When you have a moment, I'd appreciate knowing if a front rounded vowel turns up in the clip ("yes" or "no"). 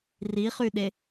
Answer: yes